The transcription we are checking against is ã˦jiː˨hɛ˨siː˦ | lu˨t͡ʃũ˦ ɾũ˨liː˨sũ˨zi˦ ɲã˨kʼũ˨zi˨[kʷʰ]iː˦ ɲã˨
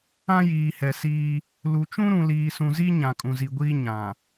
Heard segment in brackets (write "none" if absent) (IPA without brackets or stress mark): ɡʷ